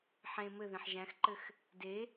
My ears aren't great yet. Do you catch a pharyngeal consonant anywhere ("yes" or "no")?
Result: yes